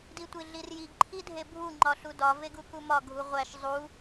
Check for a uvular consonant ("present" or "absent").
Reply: present